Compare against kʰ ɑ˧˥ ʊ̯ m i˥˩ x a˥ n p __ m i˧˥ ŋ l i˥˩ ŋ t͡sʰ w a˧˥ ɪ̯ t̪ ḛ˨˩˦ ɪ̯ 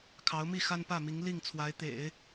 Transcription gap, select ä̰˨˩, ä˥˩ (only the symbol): ä˥˩